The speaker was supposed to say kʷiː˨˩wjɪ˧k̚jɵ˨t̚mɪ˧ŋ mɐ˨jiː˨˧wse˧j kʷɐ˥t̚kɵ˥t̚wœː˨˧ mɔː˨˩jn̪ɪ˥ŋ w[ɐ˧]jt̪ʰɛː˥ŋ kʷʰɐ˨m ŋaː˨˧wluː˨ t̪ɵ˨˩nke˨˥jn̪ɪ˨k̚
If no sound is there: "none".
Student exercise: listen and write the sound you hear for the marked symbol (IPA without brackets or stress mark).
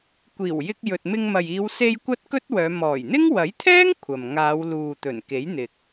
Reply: ɐ˨˥